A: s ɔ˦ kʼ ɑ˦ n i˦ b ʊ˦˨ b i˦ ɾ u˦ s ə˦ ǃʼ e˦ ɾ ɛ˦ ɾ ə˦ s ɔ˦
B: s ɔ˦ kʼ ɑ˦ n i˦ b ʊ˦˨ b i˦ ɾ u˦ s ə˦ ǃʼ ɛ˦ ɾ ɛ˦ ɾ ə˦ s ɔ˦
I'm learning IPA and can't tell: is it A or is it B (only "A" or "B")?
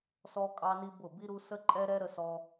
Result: B